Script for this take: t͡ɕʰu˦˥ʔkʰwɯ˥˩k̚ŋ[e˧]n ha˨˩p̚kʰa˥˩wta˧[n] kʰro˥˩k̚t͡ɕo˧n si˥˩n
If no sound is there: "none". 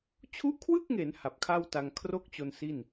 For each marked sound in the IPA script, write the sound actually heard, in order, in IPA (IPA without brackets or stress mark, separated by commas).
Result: e˩˦, ŋ